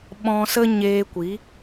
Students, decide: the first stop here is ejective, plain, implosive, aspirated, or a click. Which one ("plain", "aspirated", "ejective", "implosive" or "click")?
implosive